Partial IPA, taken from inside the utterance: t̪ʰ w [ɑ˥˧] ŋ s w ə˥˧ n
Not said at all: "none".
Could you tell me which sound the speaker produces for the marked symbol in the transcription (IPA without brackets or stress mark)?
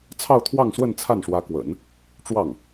ɑ˥˧